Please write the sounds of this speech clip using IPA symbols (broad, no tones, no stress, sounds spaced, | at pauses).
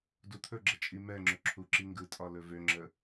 d u t̪ʰ ɵ ɡ͡ǁ ə t͡ʃʼ i m ɛ ŋ͡ǁ ɵ ǁʰ u ǁ i ŋ ɡ ɯ tʼ ɒ l ɵ v ø ŋ͡ǁ ə